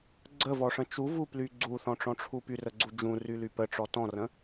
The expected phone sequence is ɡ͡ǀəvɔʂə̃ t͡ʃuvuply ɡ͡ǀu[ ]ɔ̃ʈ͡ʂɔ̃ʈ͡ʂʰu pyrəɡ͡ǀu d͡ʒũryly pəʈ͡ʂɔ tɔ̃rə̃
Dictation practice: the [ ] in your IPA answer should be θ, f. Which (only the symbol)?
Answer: θ